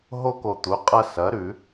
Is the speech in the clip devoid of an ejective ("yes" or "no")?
no